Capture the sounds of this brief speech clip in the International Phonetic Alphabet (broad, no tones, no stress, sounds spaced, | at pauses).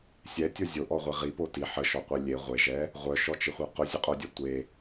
sʲ ɛ tʲ o zʲ o ʔ ɔ ʁʷ e ʁ i p o t i ħ ə ʃ ɔ qʷ e lʲ e ʁʷ e ʒ ɛ | ʁʷ œ ʃ ɔ t͡ʃ ɪ χʷ ɛ q ʊ zʲ ə qʼ o dʲ ɛ tʷ e